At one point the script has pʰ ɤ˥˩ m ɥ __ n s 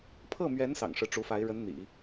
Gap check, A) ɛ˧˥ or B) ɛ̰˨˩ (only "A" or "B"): A